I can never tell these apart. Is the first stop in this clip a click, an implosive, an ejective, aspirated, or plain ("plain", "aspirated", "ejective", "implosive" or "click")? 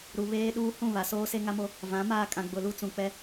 implosive